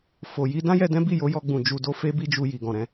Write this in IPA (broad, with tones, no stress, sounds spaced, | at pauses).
f o˨ j i˧ d ã˦ j ɛ˧ d ɛ̃˦ b i˦˨ j o˨˦ j ɔ˧ ɡ͡b ũ˨ d͡ʒ u˨ d o˧ f e˦ b i˦ d͡ʒ u˧ j i˨ ɡ ɔ̃˨ ɾ ɛ̃˨˦